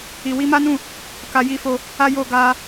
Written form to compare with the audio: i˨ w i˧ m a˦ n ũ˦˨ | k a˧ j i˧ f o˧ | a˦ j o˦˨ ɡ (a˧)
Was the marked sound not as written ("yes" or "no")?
no